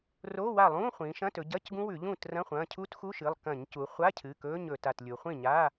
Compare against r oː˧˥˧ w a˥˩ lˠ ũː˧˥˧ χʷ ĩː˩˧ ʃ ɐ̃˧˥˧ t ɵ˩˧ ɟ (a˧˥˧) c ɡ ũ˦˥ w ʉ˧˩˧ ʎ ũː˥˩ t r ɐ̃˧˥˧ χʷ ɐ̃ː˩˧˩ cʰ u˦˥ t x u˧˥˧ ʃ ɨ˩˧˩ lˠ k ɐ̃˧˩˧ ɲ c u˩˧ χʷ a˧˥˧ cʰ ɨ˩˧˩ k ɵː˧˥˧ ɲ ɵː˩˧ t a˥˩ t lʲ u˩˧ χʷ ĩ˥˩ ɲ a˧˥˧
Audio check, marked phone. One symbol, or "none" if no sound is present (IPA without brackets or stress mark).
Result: ɐ˧˥˧